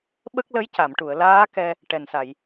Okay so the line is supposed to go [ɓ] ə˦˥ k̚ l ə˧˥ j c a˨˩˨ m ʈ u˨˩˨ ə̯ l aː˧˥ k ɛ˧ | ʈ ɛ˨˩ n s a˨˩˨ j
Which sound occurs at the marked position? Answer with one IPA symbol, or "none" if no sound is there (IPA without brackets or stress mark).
ɓ